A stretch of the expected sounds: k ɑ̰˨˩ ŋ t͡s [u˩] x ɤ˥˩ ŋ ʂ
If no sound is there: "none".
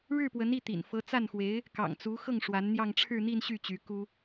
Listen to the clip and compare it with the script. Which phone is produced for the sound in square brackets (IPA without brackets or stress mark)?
u˧˥